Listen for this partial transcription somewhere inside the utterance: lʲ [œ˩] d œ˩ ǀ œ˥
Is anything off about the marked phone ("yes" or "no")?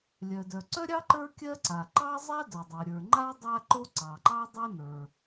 no